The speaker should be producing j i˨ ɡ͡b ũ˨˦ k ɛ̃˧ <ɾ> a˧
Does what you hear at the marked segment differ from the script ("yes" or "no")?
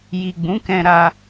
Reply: no